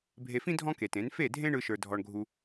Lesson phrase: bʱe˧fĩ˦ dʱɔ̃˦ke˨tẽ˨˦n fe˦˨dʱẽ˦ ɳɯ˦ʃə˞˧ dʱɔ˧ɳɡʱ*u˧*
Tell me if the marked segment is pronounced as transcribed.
yes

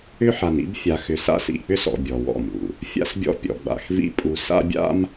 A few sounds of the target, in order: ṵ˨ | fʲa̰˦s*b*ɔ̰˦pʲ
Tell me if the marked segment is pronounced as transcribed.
no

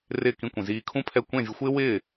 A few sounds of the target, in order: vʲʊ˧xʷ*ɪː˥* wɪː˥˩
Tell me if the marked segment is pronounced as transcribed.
yes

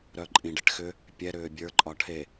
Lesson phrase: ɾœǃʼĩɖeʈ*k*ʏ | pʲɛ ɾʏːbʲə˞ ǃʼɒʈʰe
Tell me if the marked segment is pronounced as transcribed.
no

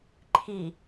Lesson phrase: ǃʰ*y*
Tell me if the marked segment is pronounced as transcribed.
no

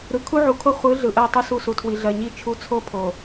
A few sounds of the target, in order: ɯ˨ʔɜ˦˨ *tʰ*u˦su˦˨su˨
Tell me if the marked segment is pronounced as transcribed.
no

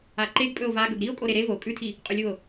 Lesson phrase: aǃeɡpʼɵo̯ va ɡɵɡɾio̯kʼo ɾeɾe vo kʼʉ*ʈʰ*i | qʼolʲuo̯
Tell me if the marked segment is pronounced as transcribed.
no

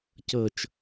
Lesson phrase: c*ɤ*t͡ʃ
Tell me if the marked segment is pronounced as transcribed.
yes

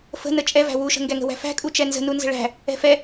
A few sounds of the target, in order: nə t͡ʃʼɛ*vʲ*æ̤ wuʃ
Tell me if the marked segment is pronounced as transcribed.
no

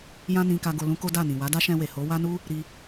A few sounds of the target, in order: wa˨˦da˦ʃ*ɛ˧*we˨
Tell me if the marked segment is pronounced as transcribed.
no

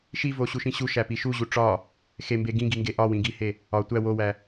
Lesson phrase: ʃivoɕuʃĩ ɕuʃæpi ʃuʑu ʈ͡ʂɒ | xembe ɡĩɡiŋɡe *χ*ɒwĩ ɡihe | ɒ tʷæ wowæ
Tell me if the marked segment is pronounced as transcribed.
no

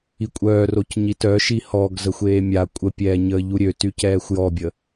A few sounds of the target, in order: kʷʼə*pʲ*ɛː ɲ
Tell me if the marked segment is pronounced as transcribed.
yes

